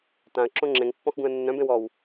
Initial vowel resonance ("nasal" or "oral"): nasal